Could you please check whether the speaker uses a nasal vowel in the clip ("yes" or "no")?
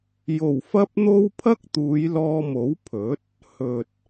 no